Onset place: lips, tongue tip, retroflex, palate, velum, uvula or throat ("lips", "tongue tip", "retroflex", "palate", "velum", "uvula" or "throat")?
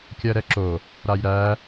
velum